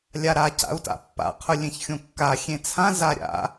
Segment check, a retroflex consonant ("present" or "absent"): absent